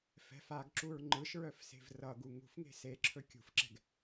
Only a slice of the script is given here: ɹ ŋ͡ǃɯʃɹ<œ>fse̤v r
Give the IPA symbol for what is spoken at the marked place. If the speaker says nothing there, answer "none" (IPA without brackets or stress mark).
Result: œ